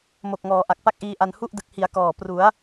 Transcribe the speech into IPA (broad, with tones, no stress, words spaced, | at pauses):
mo˨˩k̚ŋɔː˩˦ ʔa˨˩k̚pa˥˩k̚ʔiː˧ʔa˧n hu˥˩ʔdɯ˨˩k̚ hi˩˦a̯ kɔː˨˩ pru˩˦a̯